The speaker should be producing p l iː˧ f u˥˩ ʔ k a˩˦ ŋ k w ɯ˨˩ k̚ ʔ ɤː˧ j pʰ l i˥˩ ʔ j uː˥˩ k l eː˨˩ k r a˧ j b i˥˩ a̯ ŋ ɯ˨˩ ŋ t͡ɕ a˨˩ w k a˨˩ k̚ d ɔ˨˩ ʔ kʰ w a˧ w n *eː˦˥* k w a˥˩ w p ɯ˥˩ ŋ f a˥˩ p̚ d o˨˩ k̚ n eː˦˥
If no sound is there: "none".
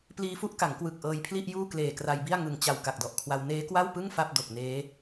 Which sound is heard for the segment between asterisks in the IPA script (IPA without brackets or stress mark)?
eː˦˥